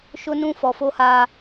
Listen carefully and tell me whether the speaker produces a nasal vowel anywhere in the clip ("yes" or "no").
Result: yes